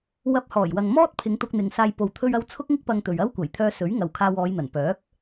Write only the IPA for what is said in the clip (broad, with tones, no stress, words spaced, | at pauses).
wɐ˧p̚hɔː˨˩jwɐ˨ŋ mɔː˥t̚pʰɪ˨˧ŋ t̪ʊ˧k̚n̪ɪ˨ŋsaː˧j po˨wt̪ʰɵ˧ɥɐ˧w t͡sʰʊ˥k̚ŋɪ˥k̚pɐ˧ŋt̪ɵ˨ɥ ɐ˥wkʷɐ˨˩j t̪ʰœː˧ sɵ˨˥ɥŋɐ˨w kʰaː˧wɔː˨˧jn̪ɐ˨˩n pœː˨˥k̚